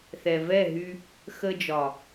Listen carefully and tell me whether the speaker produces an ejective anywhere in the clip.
no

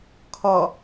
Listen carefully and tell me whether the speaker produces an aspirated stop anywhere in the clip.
yes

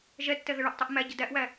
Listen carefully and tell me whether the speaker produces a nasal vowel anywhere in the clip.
no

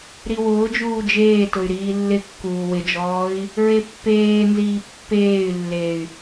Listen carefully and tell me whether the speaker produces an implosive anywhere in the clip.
no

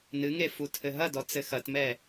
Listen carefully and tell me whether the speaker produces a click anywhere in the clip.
no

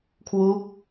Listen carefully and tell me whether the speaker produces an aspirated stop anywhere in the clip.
yes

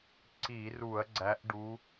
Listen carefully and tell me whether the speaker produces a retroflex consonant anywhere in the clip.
yes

